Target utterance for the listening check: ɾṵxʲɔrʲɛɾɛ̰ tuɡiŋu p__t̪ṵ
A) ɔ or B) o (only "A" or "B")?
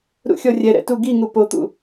B